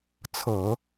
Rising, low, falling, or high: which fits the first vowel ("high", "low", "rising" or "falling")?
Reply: low